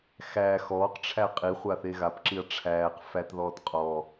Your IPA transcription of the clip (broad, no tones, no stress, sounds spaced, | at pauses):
x æː x ɔː q ʈ͡ʂʰ æ qʼ i χʷ a θ e ɣ a p ǁ i ɐ̯ ʈ͡ʂʰ æː q f æ t ð ɔː t qʼ ɔ